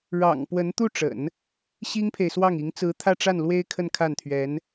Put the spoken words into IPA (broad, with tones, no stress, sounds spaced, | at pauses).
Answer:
ɻ ɑ̰˨˩ ŋ p w ə˧˥ n t̪ u˥˩ ʈ͡ʂ ə̰˨˩˦ n | ɕ i˥ ŋ pʰ e˨ ɪ̯ s w ɑ˥˩ ŋ i˧˥ ŋ t͡s ɹ̩˧˥ t̪ʰ ä˥˧ ʈ͡ʂ a˥˩ n l w e˥ ɪ̯ kʰ ə˥˧ n kʰ a˥˩ n t̪ʰ ɥ ɛ˧˥ n